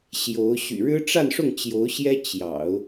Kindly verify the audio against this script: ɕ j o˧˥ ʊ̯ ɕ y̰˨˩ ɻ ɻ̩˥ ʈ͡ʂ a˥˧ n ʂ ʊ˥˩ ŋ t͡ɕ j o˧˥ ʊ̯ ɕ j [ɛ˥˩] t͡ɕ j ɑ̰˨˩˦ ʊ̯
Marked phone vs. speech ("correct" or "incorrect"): incorrect